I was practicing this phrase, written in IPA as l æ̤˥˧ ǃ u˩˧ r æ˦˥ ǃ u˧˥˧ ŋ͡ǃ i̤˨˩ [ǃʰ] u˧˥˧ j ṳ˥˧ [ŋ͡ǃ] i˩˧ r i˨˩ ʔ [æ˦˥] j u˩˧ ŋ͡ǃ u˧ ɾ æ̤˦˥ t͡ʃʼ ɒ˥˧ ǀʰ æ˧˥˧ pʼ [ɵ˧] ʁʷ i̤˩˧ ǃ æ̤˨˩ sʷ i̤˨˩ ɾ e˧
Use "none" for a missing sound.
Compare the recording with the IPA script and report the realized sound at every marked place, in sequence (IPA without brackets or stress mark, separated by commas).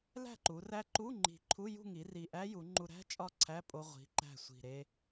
ǃʰ, ŋ, æ˦˥, o˧